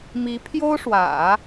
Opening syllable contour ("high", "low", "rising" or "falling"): rising